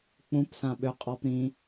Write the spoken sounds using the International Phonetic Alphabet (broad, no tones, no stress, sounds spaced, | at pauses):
k͡p ũ p s ã ɓ ø qʼ ɔ p ɾ ĩ